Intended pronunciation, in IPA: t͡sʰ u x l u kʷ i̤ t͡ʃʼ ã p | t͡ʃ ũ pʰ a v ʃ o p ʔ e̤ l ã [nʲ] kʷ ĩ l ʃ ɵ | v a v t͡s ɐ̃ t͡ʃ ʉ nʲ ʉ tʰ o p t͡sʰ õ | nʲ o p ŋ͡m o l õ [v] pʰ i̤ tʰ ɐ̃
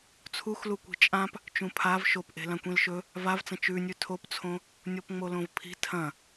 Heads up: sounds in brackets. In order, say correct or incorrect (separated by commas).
incorrect, correct